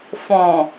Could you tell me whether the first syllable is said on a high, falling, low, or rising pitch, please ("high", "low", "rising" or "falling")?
low